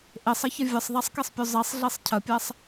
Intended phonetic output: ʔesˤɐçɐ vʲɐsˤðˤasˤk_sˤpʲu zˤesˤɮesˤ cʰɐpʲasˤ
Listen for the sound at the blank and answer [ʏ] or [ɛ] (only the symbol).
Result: ɛ